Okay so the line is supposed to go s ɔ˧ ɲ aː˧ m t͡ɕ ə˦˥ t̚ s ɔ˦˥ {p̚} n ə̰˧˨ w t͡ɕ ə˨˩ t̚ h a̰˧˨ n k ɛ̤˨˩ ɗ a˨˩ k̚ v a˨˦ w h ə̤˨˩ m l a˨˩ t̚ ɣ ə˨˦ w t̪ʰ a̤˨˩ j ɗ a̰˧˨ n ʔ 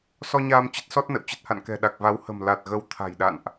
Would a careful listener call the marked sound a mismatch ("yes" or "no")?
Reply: yes